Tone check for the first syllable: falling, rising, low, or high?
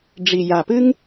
low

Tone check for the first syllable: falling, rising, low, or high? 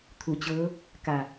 low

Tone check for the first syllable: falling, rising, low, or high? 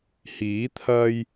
rising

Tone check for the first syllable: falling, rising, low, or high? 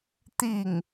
falling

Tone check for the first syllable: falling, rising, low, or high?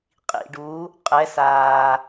low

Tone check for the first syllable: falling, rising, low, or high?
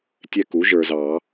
falling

